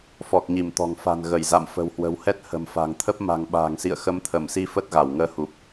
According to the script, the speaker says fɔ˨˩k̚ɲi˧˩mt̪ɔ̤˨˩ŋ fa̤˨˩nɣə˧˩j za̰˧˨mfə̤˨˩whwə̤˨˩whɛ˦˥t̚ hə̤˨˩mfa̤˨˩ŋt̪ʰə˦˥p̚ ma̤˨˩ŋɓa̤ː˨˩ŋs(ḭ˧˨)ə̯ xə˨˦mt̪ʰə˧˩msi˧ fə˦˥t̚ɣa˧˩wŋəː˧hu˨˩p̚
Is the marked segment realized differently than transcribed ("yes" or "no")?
no